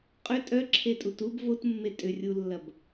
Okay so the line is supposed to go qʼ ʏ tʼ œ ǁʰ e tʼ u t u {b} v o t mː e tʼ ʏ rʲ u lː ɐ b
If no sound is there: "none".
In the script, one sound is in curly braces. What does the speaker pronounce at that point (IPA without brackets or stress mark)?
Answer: b